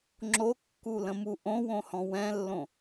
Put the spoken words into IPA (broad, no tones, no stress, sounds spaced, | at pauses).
ŋ͡ǁ o kː u l ə̃ m u ʔ õ w õ h ɔ̃ w ɛ̃ lː õ